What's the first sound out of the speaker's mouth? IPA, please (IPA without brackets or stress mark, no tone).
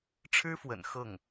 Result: ʈ͡ʂʰ